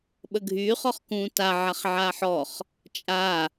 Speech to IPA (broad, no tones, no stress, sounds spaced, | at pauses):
ɓ ə ɡʱ yː χ ɔ χ k ũː t a ʕ a χ ʕ a ħ ɔ χ | t͡ʃʼ a